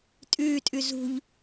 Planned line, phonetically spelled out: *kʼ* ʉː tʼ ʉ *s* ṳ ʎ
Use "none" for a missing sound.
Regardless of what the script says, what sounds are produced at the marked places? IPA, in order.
tʼ, z

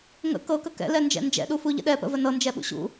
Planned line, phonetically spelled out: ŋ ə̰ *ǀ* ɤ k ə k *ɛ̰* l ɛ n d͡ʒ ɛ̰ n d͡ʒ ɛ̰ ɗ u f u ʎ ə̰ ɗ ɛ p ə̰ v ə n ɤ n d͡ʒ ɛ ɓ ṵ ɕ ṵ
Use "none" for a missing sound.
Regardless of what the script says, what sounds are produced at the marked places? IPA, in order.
k, ɛ̰

